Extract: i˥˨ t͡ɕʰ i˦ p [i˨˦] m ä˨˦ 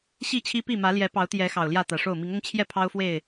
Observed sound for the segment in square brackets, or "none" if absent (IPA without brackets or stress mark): i˥˨